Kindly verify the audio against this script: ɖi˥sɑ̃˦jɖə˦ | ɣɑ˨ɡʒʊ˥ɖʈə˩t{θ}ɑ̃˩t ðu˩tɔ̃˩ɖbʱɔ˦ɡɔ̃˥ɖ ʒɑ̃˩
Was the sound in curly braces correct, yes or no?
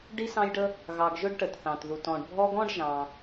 yes